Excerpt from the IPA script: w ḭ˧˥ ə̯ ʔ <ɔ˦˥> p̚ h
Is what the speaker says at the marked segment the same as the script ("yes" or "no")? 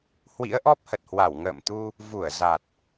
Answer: yes